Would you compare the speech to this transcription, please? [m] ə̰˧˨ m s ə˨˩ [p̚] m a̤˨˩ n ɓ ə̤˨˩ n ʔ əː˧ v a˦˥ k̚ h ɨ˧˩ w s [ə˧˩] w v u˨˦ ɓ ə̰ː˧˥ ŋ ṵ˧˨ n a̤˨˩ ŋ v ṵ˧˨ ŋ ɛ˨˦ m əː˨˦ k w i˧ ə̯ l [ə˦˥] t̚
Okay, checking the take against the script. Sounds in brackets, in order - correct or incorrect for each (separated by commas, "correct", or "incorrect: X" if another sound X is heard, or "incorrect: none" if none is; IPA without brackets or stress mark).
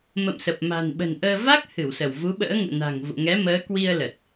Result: correct, correct, correct, incorrect: ə˨˩